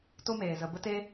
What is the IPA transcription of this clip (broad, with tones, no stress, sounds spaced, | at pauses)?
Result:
t o˦ m eː˨ z ə˨ b ə˦ t e˦